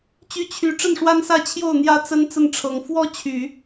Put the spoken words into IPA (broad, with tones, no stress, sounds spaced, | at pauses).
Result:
t͡ɕ y˧˥ t͡ɕʰ y˨˩ ʈ͡ʂ ə˥˩ n ʂ w a˥ n s ä˥˧ t͡ɕʰ j o˥˩ ʊ̯ n̪ j ä˥ t͡s ə˥ n t͡s ə˥˩ n ʈ͡ʂʰ ɤ˨˩ ŋ f w ɔ˥ t͡ɕʰ y˨˩˦